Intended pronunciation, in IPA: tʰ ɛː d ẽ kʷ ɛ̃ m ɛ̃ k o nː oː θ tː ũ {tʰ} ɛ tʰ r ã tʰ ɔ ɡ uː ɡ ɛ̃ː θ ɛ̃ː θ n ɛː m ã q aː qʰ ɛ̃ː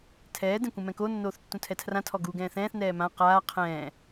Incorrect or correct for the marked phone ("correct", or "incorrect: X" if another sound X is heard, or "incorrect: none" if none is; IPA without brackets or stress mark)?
correct